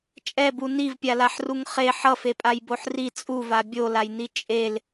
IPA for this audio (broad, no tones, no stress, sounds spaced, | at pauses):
t͡ʃʼ ɛ b u n i v pʲ a l a ħ r u ŋ χ e ħ ʌ f e pʼ a j b o ħ r i t͡sʼ u v a bʲ o l a j n i t͡ʃʼ e l